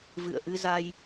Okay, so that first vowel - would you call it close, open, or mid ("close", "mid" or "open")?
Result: close